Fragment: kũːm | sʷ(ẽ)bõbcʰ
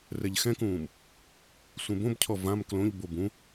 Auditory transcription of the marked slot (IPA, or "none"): ẽ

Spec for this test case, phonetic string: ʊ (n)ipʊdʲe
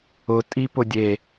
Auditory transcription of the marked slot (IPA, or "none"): tʼ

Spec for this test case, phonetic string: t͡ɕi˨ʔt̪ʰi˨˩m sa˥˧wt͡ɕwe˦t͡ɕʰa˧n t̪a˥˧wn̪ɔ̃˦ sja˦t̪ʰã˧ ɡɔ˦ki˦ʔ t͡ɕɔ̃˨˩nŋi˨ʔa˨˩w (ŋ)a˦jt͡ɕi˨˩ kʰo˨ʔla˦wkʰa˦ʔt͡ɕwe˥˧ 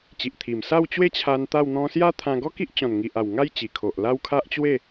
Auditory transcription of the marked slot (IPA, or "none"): ŋ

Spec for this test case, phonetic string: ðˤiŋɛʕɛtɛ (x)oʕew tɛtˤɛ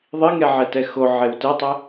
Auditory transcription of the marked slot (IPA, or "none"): x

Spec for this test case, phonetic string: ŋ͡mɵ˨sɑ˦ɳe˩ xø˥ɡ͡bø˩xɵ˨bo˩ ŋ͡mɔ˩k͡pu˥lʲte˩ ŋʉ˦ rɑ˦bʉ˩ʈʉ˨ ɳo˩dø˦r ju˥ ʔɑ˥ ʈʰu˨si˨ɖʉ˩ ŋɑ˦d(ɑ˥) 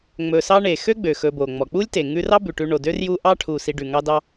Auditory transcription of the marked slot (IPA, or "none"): ɑ˦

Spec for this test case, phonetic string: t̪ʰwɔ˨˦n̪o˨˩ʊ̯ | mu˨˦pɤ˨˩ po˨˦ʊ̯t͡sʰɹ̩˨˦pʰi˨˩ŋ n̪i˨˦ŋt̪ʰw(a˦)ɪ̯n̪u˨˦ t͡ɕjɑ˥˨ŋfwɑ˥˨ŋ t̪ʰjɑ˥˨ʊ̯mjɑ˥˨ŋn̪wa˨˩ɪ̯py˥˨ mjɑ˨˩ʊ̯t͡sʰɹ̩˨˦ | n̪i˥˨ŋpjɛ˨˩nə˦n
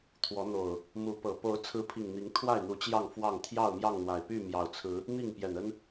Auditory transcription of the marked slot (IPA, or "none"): a˥˨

